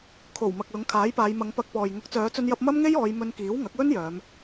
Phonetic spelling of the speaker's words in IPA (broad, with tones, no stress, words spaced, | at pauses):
kʰo˨˩w mɐ˨k̚lʊ˨˥ŋkʰaː˨˥jpaː˨˧j mɐ˨˧ŋpɐ˧k̚pɔː˨j ŋʊ˨˥k̚t͡sœː˨˧t͡sɵ˧njɐ˧p̚ mɐ˥mŋe˥j ɔː˨˧jmɵ˧nkiː˨˥w ŋɐ˨˥k̚wɵ˥n jœː˨˧m